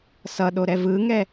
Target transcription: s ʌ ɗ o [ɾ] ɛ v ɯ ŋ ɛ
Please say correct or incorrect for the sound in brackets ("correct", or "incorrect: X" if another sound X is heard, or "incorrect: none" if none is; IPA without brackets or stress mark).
correct